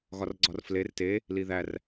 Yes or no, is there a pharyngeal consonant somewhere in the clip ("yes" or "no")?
no